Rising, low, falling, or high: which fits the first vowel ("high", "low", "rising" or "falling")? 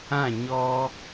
falling